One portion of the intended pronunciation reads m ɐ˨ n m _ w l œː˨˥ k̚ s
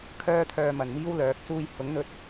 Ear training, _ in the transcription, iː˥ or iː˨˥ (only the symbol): iː˥